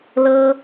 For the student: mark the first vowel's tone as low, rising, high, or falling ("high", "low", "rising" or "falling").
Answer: high